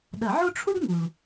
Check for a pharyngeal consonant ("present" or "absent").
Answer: present